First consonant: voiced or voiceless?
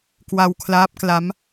voiceless